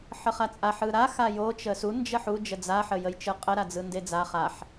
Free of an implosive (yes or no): yes